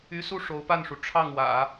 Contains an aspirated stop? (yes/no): yes